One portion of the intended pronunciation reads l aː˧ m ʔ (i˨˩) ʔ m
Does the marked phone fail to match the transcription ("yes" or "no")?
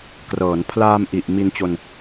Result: no